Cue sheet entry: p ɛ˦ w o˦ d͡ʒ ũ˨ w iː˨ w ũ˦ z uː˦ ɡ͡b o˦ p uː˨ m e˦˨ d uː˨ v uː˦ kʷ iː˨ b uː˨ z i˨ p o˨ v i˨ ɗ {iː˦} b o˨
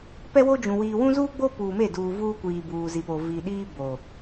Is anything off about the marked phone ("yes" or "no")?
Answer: no